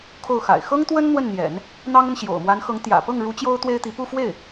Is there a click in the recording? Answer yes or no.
no